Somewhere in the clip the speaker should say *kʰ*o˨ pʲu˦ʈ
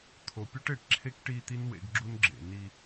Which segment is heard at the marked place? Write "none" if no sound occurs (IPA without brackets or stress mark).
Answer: t̪ʰ